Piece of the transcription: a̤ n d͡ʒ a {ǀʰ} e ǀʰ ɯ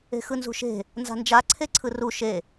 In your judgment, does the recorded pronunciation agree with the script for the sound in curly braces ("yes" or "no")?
yes